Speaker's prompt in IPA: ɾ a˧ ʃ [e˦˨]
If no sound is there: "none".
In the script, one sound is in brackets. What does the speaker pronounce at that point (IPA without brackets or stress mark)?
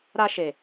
e˨